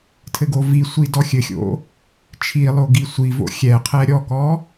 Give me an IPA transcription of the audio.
tʰ ɘ ɡ o v i sʷ i d ɔ xʲ ɘ xʲ o̰ | t͡ʃʰ i lˠ o ɡ i sʷ i v o̰ xʲ ɛ qʰ ɛ ɾʲ ɔ k ɔ

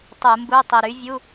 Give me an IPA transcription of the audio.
tˤ u˧˩˧ m b u˧˥˧ tˤ i˨˩ ɾ y˨˥ vʲ u˧˥˧

